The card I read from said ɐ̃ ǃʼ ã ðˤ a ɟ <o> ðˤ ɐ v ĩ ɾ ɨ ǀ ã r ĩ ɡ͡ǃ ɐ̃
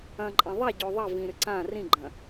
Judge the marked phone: correct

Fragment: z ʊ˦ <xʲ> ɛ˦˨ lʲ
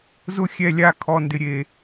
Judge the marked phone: correct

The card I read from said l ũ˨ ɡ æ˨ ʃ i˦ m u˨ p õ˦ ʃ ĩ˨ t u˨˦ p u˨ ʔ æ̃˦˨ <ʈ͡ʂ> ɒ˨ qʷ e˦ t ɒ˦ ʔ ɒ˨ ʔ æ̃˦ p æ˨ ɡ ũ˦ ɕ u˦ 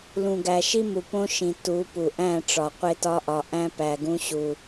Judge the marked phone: correct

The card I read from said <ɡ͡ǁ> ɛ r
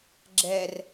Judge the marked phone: correct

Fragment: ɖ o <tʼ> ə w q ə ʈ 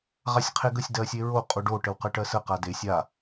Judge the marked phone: incorrect: ʈ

